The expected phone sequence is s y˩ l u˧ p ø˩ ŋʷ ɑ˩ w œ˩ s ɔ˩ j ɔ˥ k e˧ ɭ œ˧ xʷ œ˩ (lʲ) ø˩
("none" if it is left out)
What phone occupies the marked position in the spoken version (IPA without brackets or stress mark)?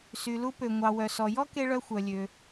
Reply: lʲ